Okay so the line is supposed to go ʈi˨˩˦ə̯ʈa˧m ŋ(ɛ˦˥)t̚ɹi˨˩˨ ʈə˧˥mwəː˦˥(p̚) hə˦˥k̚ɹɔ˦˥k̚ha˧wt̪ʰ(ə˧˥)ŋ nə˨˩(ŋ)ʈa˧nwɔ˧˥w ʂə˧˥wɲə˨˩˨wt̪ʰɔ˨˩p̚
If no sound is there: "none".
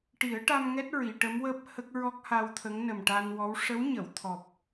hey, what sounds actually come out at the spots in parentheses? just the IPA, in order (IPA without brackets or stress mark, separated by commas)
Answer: ɛ˦˥, p̚, ə˧˥, m